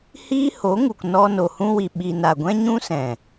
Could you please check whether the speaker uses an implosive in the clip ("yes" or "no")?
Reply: yes